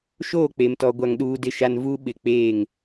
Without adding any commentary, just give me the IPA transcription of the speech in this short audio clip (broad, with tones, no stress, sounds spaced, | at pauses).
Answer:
ʃ oː˦˨ k͡p e˨ m t ɔ˨ ɡʷ a˨ ŋ ɗ uː˨ d ɪ˨ ʃ a˨ n v u˦ ɓ ɪ˨ k͡p eː˦˨ ŋ